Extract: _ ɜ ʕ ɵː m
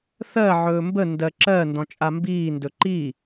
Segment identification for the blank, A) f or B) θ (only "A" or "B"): B